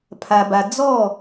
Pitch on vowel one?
low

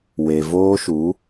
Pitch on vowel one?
low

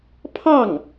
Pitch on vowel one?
falling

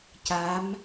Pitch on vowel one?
rising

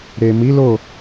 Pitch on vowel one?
low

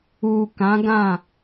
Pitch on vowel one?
low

